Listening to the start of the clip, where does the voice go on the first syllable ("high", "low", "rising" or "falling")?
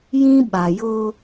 high